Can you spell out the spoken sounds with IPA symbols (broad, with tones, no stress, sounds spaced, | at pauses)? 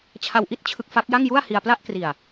t͡ɕʰ a˧ w ʔ i˥˩ t̚ t͡ɕʰ ɯ˦˥ k̚ f a˦˥ k̚ j a˥˩ ŋ j u˥˩ a̯ h i˧ a̯ p l a˥˩ ʔ k r i˨˩ a̯